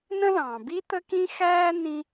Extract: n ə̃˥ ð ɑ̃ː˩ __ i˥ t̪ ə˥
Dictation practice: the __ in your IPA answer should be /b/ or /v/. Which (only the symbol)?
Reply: b